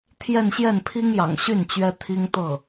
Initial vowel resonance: oral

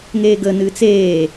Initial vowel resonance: oral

